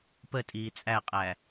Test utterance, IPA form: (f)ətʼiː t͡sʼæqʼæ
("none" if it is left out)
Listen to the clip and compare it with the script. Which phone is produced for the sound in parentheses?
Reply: p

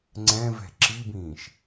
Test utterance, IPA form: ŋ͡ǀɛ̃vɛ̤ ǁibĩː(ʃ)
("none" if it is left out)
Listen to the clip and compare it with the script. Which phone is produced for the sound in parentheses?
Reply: ʃ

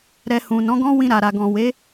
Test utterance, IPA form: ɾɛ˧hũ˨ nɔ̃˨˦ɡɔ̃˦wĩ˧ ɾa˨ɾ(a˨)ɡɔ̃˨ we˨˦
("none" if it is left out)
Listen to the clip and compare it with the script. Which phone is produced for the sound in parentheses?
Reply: a˨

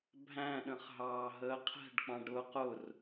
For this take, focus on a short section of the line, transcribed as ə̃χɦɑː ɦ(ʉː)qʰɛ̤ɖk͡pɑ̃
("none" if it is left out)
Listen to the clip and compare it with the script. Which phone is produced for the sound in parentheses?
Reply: əː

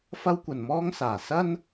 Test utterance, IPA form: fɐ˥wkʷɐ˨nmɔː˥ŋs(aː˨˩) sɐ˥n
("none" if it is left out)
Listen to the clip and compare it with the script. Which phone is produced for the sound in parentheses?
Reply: aː˨˩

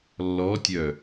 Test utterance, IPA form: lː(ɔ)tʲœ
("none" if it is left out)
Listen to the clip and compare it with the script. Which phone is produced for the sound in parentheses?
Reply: ɔ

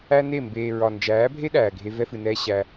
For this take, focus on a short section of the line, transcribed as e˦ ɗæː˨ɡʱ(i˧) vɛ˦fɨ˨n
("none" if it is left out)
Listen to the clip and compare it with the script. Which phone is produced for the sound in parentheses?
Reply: e˧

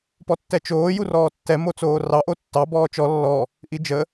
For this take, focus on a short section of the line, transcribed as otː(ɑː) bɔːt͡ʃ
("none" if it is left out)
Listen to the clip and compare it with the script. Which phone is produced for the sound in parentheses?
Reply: ɑ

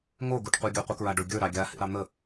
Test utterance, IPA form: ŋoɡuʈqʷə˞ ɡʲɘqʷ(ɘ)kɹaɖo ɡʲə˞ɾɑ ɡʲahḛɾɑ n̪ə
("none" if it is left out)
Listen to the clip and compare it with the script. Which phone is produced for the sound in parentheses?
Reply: ɘ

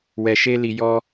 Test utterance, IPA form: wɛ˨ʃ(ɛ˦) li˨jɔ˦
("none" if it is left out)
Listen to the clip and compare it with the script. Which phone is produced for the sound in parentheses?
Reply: e˦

